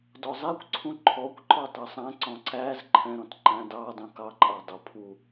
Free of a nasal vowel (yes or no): no